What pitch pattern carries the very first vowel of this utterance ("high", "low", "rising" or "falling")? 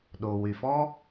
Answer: low